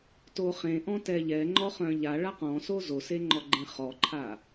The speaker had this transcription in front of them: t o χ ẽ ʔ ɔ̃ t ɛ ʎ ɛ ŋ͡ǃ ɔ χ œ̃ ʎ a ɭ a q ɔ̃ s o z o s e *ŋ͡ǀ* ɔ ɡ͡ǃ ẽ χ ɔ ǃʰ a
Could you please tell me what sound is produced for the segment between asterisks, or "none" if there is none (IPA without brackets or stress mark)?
ŋ͡ǃ